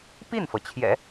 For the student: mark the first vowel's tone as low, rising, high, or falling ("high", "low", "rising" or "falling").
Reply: falling